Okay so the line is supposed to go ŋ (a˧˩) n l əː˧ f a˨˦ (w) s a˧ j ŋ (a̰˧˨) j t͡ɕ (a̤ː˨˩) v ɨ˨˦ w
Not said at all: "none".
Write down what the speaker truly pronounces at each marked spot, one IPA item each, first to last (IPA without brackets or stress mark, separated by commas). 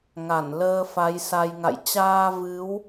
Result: a˧˩, j, a̰˧˨, aː˧